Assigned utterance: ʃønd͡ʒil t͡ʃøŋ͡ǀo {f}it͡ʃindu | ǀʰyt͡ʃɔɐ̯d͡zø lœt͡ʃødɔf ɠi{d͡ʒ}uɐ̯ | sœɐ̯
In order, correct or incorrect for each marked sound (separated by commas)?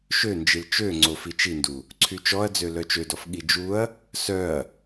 correct, correct